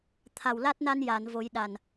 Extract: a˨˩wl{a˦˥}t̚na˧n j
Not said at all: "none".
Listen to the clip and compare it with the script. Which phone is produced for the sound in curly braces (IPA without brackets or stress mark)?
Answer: a˦˥